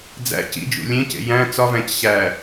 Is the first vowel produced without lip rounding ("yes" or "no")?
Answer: yes